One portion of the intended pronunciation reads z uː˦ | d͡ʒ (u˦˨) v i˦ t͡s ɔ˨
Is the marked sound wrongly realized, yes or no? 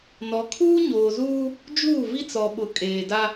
yes